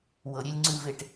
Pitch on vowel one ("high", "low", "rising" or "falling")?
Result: low